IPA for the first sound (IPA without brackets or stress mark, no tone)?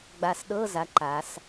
ɡ͡b